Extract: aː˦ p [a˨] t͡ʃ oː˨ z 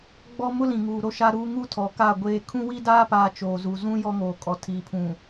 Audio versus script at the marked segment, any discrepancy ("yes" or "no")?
yes